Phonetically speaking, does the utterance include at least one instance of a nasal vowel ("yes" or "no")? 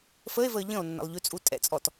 yes